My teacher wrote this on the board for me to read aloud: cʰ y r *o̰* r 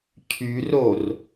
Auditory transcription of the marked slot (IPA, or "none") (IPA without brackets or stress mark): o